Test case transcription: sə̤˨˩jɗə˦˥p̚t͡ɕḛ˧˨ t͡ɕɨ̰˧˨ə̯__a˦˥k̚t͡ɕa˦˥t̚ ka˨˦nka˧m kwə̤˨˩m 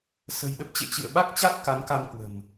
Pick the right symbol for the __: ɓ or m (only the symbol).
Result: ɓ